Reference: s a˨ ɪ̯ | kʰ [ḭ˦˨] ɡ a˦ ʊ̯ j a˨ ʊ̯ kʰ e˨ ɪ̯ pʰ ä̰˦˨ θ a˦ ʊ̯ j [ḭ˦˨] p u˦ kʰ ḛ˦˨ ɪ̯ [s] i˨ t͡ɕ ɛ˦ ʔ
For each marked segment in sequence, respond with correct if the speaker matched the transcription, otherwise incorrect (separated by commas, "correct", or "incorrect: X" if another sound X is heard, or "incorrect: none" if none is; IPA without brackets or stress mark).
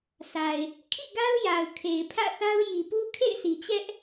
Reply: correct, incorrect: i˨, correct